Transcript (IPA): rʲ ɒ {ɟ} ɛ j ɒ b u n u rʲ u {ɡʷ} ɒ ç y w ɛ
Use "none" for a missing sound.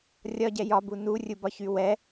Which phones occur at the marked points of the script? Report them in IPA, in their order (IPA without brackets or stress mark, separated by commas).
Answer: ɟ, b